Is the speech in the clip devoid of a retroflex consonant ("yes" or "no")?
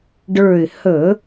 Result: no